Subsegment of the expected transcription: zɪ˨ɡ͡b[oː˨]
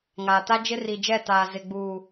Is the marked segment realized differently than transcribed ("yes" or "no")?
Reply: yes